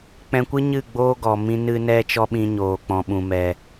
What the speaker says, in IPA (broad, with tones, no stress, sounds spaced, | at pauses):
k͡p ɛ̃˧ kʷ ɨ˦ ɲ ɨ˦˨ ɡ͡b oː˦ ɡ ɔ˨ m ĩ˧ n ɨ˦ n ɛ˦ t͡ʃ ɔ˦ ɓ ĩ˧ ɲ oː˨ k͡p ɔ̃˨ ɓ ũ˨ m ɛ˨